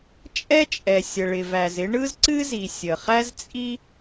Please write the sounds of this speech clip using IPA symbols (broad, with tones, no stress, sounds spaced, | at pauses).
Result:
t͡ʃʼ ɛ˥ t͡ʃʼ ɛ˩ sʲ ə˩ ɭ ɪ˩ v æ˩ z ɪ˥ ɳ ɯ˥ z ǀ ɨ˥ z i˩ sʲ ə˩ χ æ˥ z t͡sʼ i˥